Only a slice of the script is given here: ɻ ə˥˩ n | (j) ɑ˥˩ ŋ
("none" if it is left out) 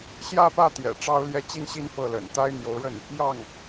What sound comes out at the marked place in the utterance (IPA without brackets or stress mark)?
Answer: j